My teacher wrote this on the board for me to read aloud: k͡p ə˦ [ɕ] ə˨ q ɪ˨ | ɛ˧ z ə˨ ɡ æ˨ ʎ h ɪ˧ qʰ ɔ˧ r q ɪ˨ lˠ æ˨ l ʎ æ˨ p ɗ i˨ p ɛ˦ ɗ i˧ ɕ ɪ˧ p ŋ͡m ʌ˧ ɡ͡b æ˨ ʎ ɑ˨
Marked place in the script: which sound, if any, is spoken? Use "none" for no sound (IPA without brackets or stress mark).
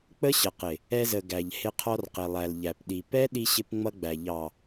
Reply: ɕ